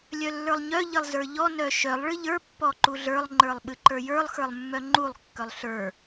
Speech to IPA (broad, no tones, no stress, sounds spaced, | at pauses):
lʲ œ lː ə˞ lˠ ɲ œ ʎ ɨ lˠ z ə˞ ʎ ɔ n œ ʃ œ lˠ ɭ ɨ ʎ ə˞ pː ɔ ǃ u ɮ ə˞ lˠ ŋ͡ǃ ə˞ lˠ ɓ ɨ ǃ ə˞ j ə˞ lˠ x ə˞ lˠ mː œ ŋ͡ǃ u lˠ kː œ lˠ ɬ ə˞